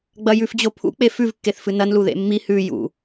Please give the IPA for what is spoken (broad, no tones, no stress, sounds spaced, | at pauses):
ɡ͡b ɐ j ʉ f d͡ʑ o pʰ ṵ k͡p e f ʉ v kː e θ f ɨ n ɐ n l u ð ḛ mː i h ʉ j ṵ